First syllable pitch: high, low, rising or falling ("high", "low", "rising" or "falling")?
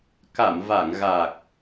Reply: low